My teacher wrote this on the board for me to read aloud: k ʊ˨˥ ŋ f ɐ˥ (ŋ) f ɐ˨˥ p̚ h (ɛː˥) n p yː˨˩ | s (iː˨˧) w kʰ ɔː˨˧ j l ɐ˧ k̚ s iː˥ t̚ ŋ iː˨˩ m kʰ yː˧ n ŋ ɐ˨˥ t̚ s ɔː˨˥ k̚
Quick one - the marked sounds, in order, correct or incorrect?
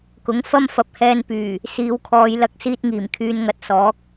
incorrect: m, incorrect: ɛː˧, correct

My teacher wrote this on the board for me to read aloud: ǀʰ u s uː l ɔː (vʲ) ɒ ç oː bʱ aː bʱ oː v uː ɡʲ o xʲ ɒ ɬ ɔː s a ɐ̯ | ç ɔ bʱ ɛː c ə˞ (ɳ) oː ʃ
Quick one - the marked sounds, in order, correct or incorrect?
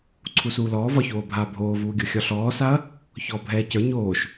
incorrect: v, incorrect: ɲ

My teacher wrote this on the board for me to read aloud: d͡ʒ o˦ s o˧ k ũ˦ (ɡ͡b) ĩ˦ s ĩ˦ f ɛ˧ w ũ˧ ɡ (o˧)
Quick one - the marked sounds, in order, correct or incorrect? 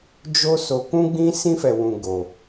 correct, correct

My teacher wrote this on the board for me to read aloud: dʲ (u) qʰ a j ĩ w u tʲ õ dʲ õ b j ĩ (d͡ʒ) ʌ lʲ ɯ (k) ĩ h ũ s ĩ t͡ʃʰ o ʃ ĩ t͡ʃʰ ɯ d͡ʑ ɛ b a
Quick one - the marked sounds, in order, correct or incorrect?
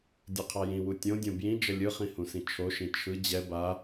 incorrect: o, correct, incorrect: χ

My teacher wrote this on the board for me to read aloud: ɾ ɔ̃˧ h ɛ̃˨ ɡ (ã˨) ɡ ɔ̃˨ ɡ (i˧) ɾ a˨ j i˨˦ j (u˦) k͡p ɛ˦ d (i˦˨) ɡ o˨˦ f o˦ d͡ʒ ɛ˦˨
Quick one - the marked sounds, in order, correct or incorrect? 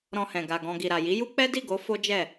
incorrect: a˨, incorrect: i˨, correct, correct

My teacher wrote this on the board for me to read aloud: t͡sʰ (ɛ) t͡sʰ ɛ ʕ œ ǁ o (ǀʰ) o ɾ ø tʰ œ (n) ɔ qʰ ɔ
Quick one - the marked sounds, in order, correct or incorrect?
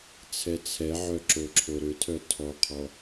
correct, incorrect: ǁʰ, incorrect: tʰ

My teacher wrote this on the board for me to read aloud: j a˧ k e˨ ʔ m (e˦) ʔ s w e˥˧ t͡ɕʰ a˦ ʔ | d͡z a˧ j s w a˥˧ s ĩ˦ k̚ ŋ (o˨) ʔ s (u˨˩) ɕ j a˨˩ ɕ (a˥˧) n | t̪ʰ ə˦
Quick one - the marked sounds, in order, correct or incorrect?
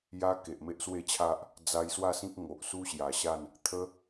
correct, correct, incorrect: u˦, correct

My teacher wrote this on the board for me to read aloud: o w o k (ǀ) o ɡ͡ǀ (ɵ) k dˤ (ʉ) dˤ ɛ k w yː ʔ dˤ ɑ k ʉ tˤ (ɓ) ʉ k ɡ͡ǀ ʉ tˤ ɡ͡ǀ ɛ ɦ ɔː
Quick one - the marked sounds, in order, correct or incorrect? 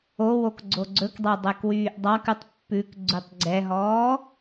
incorrect: ɡ͡ǀ, correct, incorrect: ø, incorrect: pː

